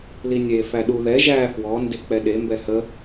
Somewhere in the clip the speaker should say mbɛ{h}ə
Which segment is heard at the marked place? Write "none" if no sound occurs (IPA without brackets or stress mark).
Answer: h